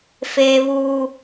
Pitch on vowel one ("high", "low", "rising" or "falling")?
high